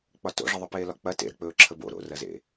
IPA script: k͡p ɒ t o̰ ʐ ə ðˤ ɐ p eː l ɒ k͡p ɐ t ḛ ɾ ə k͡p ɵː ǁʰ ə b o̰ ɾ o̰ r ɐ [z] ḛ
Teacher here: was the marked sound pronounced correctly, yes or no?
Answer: yes